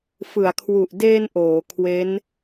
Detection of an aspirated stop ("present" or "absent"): present